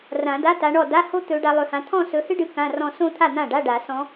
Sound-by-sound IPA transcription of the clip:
r ã˨˩˦ d a˧˥˧ t a˨˦ ɳ ɔ˥˩ d a˧˥˧ h o˥ t̪ ɵ˨˦ ɖ a˨˦ lˠ ɵ˨˦ h ã˨˦ t̪ʰ ɔ̃˥˧ s ɵ˨˦ h ɨ˥ ɖ ɨ˨˦ k ã˧˥˧ r ɔ̃˥˧ s õ˥˧ t̪ʰ a˥˩ n̪ ã˥˩ ɖ a˧˥˧ ɖ a˨˩˦ s ɔ̃˨˦

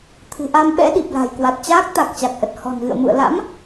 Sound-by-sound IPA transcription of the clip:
t̪ʰ ɨ̤˨˩ ʔ a˧ m ɓ ɛ̰˧˥ ɗ i˨˩ p̚ l a̤˨˩ j k w a˨˩ t̚ t͡ɕ aː˦˥ k̚ t̪ a˨˩ k̚ t͡ɕ a˨˩ k̚ ʔ ə˨˩ t̚ h ɔ̤˨˩ n ɣ ɨ̰˧˨ ə̯ m ṵ˧˨ ə̯ l a̰˧˥ m

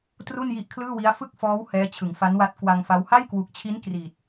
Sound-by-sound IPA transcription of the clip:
t r u˥˩ n j i˦˥ ʔ kʰ l ɯː˥˩ w i˦˥ a̯ f ɯ˥˩ k̚ f ɔː˦˥ w h ɛː˦˥ t͡ɕʰ ɯ˩˦ ŋ f a˦˥ n w a˦˥ t̚ k w a˧ ŋ f a˦˥ w h a˥˩ j k w u˨˩ k̚ t͡ɕʰ i˦˥ n k r i˨˩ t̚

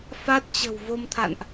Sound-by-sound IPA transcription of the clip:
f a˦˥ t̚ t͡ɕ ə̤˨˩ w v o˧ m t̪ʰ a̰˧˨ n ʔ

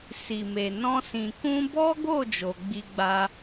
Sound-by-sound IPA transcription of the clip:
s i˨ m e˨ n ɔ̃˧ s ĩ˨ k ũ˧ b ɔ˦ ɡ o˦˨ d͡ʒ o˧ ɡ͡b i˧ ɡ͡b a˧

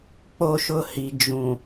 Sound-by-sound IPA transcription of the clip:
k͡p o˦ ʃ ʊ˦ h i˨ d͡ʒ ũ˨

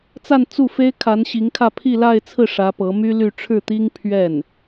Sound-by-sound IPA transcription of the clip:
t͡s a˥˧ n t͡s u˥˩ f e˥ ɪ̯ kʰ a˧˥ n ɕ i˧˥ ŋ kʰ ä˥˧ pʰ i˥˧ l a˥˧ ɪ̯ t͡sʰ ɹ̩˥˩ ʂ ä˧˥ p ɤ˧˥ m y˥ l y˥˧ ʈ͡ʂʰ ɻ̩˥˩ t̪ i˥ ŋ pʰ ɥ ɛ˥˩ n

